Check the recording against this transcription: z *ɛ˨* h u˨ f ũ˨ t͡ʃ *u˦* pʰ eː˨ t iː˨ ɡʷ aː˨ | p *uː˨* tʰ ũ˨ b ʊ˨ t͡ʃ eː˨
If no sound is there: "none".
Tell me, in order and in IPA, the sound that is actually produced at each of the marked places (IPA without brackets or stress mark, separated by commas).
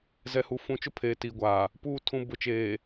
ɛ˨, ʊ˦, uː˨